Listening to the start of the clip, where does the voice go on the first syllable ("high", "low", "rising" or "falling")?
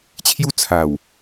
high